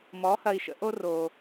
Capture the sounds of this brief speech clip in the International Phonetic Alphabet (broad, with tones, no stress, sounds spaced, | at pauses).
m ɔ˨˥ h ɐ˧ i̯ ʃ ə̰˧ ʔ o˧ r o˩